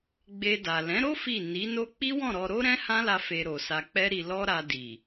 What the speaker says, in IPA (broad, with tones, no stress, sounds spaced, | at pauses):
ɡ͡b e˧ d a˨ l ɛ̃˨˦ ɾ o˦ f i˦˨ n i˨˦ n o˦ k͡p i˦ w ɔ̃˦˨ ɾ ɔ˧ ɾ o˦ ɾ ɛ̃˦ h ã˦ l a˧ f e˧ ɾ o˨ s a˧ k͡p ɛ˦ ɾ i˧ l ɔ˦ ɾ a˧ d i˨